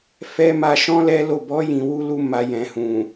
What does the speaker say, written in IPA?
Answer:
f ɛ˧ m a˧ ʃ ɔ̃˦ l ɛ˦ l o˦˨ b ɔ˨˦ j ĩ˧ w u˦ l u˦ m a˧ j ɛ̃˨ h ũ˨

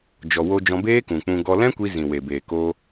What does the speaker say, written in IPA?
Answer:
d͡ʒ ɔ˨ w o˧ d͡ʒ ɔ̃˧ b eː˦ k ũ˨ k͡p ũ˧ ɡ ɔ˧ l ɛ̃˦ kʷ i˧ z ĩ˨ w e˨ b eː˨ k o˧

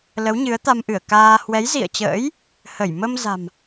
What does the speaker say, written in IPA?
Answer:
l ə˨˦ w ɲ ɨ˨˦ ə̯ t̪ a˧ m ʔ ɨ˧˩ ə̯ k aː˧ h w ɛ˨˦ j z ḭ˧˨ ə̯ t͡ɕ ə̰ː˧˥ j | h ə˧˩ j m ə˧ m z a̤˨˩ m

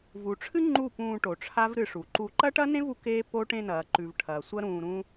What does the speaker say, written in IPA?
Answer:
v u˨ ʈ͡ʂʰ ɨ˦ ŋ͡ǃ u˦˨ p ũː˧ ʈ o˨ ʈ͡ʂʰ a˦ v ɾ ɨ˧ ʂ u˨ ǃ u˧ ǃ ɐ˦ ʈ ɐ˦ n ẽ˦ v u˧ k eː˦ p o˦ ʈ ẽ˧ n ɐː˨ ǃ ʉ˨ v ʈʰ ɐː˨ sʷ ɐ˦ ɾ ũː˧ ɾ ũ˦

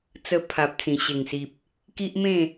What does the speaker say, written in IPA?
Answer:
t͡s ə˧ pʰ a˨ p̚ t͡s ĩ˨˩ ɕ e˨˩ ŋ s i˨ p̚ | k i˦ ʔ m ẽ˥˧

